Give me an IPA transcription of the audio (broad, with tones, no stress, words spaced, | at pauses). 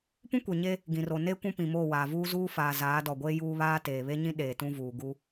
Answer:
pũ˦kʷe˨ɲe˦ | ɡĩ˨ro˨ ne˦ kʷũ˦pĩ˨moː˦˨ waː˨vuː˦ zuː˦faː˨ zaː˨˦dɔ˨ɡʷeː˦ juː˦βaː˦ teː˨βe˦ɲĩ˦ ɗeː˨tũ˦vuː˨ ɡu˦